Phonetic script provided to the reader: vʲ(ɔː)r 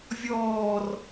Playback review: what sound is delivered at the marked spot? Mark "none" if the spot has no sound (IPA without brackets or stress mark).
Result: ɔː